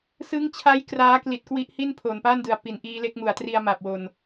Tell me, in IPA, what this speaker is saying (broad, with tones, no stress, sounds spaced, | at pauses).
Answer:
s ɯ˦˥ ŋ t͡ɕʰ a˦˥ j k r aː˦˥ k l i˨˩ t̚ k w i˦˥ ʔ h i˥˩ n pʰ oː˨˩ n p aː˥˩ n d ɯ˩˦ a̯ p i˩˦ n ʔ iː˦˥ l e˦˥ k̚ m u˩˦ a̯ t r i˧ a̯ m a˨˩ p̚ w o˨˩ n